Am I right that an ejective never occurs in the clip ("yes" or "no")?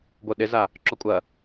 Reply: no